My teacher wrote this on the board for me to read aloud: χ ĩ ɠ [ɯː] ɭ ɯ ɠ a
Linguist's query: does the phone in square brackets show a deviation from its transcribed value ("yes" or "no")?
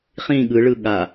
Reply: yes